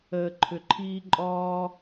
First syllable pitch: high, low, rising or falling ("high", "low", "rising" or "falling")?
low